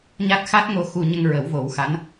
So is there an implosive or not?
no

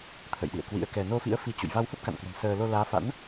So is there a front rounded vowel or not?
no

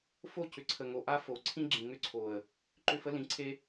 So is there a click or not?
yes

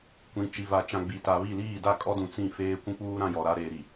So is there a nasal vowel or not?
yes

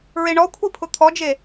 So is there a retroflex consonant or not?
yes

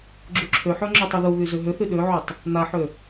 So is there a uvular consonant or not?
no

